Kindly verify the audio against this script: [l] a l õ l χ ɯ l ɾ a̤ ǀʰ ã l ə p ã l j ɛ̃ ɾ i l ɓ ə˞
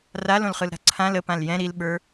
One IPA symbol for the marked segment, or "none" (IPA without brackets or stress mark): r